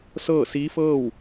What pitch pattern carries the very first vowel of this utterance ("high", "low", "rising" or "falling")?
falling